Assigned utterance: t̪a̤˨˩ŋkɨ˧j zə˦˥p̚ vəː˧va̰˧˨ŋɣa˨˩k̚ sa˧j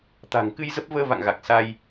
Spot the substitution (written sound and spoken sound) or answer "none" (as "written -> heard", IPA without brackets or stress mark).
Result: none